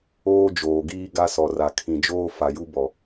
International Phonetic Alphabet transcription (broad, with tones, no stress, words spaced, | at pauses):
oː˦ d͡ʒoː˨ɡiː˦ ɡa˦sɔ˨ra˨ kʰĩ˨d͡ʒoː˦ fa˨ju˦bɔ˨